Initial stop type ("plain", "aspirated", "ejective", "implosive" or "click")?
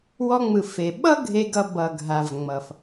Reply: implosive